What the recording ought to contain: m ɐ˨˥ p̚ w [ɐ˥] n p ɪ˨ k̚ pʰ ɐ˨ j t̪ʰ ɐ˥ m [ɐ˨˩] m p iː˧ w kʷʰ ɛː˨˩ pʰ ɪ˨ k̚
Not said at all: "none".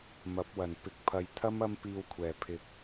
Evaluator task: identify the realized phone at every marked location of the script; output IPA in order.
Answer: ɐ˨˩, ɐ˥

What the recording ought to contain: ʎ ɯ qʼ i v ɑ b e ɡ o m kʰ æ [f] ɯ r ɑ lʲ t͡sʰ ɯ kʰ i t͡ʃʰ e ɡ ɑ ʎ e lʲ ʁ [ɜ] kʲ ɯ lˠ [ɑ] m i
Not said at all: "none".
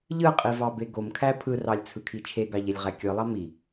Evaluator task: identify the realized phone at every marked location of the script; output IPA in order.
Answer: pʰ, æ, ɑ

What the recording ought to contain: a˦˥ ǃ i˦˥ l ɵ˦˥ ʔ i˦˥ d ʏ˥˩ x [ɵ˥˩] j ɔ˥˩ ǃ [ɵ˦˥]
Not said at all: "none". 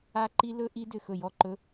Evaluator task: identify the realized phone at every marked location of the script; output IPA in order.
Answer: ɵ˥˩, ɵ˦˥

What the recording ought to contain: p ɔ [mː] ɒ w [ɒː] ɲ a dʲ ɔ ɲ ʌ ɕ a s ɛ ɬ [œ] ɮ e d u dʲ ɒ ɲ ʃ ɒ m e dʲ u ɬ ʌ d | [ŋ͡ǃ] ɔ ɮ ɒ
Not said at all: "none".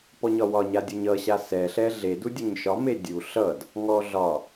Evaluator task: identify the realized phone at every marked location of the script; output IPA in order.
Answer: ɲ, ɒ, ɛ, ŋ

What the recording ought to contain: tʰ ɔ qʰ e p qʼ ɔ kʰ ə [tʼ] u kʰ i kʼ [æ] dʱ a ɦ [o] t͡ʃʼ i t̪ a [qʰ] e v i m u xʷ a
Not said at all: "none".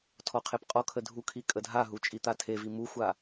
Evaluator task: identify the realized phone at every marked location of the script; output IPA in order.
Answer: dʱ, ə, u, tʰ

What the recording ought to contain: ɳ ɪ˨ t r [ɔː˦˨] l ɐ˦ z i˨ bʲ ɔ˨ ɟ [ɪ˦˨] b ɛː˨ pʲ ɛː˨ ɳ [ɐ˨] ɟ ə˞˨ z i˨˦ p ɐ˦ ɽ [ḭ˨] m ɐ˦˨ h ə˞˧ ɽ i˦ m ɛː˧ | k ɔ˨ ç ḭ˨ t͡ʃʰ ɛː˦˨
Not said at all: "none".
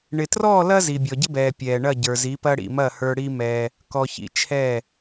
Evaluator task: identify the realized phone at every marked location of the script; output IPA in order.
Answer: ɔː˦˨, ɪ˦, ɐ˦˨, ḭ˨

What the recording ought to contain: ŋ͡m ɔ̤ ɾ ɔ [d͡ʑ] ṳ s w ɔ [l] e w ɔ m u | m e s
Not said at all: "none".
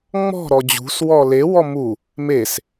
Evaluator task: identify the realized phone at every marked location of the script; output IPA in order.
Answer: d͡ʑ, l

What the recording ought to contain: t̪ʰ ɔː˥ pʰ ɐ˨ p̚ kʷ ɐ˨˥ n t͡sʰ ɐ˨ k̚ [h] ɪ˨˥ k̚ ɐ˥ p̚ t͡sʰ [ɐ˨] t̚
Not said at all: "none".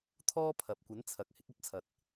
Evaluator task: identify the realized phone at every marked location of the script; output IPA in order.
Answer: h, ɐ˨

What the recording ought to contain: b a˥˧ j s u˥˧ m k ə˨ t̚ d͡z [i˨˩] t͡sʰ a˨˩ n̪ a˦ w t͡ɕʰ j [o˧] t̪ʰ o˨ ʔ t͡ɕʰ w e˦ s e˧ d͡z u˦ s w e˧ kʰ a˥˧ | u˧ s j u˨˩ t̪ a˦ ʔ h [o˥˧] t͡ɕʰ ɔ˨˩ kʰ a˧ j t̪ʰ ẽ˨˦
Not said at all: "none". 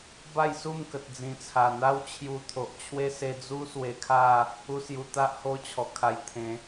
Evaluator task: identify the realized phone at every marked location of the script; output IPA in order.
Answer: ĩ˨˩, u˧, o˧

